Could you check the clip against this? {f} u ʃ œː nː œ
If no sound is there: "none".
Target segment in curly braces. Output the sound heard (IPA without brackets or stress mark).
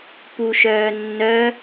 p